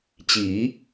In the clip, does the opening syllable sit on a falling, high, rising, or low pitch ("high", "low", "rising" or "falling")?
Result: rising